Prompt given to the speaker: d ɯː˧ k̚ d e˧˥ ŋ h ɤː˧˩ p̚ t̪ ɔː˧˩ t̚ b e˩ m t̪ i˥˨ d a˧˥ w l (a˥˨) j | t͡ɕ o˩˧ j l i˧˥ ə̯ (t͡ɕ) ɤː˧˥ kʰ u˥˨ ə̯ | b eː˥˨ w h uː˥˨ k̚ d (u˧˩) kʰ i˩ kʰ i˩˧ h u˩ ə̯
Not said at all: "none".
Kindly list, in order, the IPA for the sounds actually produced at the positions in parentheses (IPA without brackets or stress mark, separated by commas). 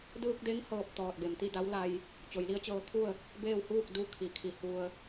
a˧, t͡ɕ, u˧˥